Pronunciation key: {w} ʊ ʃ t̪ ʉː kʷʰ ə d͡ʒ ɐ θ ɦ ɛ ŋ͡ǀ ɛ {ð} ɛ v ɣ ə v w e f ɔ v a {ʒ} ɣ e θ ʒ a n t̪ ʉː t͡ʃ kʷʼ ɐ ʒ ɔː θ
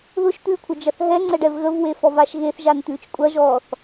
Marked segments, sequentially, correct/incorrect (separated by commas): incorrect, incorrect, incorrect